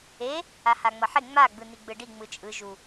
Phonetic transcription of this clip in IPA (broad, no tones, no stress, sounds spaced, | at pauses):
e | a h a ŋ͡m ʌ ħ e ŋ͡m a ɡ͡b ɯ n i ɡ͡b ɯ ɖ i ŋ͡m ɯ t͡ʃʼ ɯ ʒ u